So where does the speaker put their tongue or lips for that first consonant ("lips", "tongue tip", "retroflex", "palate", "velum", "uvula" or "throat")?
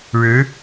retroflex